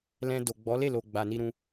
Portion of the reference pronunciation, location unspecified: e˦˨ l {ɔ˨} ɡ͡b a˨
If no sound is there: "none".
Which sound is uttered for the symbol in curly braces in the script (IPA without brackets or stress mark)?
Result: o˨